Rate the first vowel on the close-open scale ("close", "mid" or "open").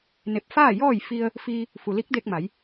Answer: mid